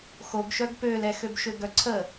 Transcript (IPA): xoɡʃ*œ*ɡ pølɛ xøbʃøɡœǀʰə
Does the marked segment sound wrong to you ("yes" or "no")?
no